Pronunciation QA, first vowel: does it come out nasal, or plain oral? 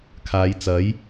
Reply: oral